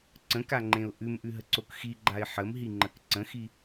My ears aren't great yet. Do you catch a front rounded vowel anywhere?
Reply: no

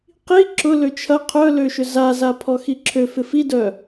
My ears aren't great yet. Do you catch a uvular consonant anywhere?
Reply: yes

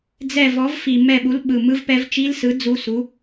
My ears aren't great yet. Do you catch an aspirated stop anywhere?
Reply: no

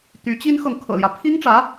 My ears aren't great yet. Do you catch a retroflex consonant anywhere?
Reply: yes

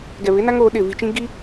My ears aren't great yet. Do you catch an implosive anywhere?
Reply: yes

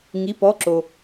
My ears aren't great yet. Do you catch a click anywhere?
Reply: yes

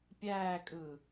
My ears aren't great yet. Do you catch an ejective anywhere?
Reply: yes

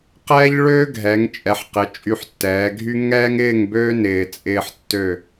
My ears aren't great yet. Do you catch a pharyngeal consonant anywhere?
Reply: yes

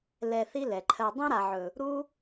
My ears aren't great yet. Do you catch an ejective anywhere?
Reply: no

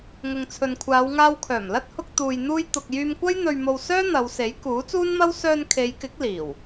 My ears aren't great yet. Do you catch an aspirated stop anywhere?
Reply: yes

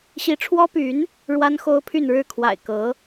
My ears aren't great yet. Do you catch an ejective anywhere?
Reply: no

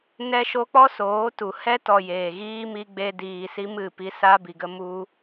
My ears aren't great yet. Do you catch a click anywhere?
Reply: no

